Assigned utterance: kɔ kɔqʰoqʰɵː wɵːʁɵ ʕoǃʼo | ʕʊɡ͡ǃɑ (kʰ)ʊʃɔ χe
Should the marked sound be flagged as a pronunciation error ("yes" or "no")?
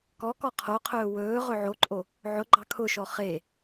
no